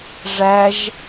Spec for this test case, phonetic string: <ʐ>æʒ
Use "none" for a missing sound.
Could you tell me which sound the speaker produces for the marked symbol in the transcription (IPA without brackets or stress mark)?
ʐ